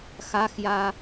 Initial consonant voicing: voiceless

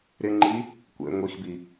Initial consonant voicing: voiced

